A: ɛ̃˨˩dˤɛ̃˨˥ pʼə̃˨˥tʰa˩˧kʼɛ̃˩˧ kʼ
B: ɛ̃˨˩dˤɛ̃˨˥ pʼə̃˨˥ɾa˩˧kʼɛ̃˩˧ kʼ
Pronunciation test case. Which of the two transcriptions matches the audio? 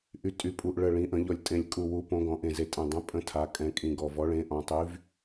A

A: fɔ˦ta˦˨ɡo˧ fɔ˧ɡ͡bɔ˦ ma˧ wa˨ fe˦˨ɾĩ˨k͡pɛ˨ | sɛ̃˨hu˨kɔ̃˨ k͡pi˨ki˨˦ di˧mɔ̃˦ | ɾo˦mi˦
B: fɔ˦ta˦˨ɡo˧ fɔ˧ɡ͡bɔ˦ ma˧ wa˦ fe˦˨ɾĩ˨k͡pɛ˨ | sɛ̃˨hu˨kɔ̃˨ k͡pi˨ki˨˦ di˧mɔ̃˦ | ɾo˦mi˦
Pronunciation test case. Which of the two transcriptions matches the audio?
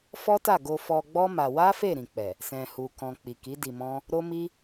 B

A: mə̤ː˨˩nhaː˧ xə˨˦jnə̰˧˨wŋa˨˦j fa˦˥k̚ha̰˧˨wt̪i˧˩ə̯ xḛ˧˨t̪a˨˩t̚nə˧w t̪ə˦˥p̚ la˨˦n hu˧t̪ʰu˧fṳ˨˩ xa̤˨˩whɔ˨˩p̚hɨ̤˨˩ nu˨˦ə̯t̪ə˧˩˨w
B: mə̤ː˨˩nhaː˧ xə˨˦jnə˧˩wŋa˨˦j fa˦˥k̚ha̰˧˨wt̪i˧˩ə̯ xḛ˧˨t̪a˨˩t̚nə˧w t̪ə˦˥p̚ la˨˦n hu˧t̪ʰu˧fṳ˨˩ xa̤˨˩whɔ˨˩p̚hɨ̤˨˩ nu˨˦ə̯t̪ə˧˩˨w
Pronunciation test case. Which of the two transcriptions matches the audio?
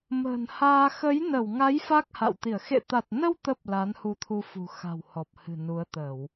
B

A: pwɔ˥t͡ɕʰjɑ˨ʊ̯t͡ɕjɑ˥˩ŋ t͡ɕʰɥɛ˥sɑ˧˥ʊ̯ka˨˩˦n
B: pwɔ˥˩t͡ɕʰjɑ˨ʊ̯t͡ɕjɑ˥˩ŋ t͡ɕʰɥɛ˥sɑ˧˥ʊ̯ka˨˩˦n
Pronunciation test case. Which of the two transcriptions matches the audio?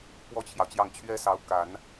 A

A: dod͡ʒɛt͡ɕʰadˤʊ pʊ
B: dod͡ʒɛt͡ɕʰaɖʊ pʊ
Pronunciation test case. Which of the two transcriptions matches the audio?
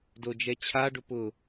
B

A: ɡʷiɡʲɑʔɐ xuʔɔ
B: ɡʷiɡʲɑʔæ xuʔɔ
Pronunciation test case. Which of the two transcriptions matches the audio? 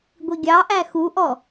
B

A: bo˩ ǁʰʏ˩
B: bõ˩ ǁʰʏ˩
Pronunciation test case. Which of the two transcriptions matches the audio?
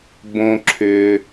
B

